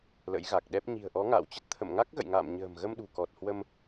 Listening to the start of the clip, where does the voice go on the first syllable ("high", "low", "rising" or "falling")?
rising